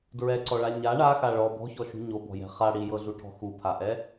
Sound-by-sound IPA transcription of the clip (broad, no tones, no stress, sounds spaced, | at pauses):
d ɹ ɛ ǀ ɔ ɭ a ɲ a ɳ a x a ɭ ɔ b ɔ̤ ç ɔ ʃ ṳ ɲ o b ɔ̤ j ɛ̤ χ a ɽ i j ɤ ɮ u ʈʰ ɔ̤ x u pʰ a ʔ ɛ